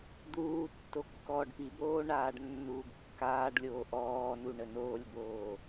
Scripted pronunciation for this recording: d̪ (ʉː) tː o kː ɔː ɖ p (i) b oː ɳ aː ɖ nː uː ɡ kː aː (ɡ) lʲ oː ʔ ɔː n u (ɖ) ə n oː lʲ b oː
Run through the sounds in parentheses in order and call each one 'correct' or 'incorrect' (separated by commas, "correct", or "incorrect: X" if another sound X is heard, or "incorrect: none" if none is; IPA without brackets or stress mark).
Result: incorrect: uː, correct, incorrect: ɖ, incorrect: ɳ